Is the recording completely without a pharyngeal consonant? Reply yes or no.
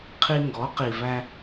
yes